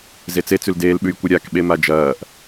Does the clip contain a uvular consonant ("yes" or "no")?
no